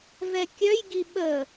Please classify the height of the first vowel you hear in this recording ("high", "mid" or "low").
mid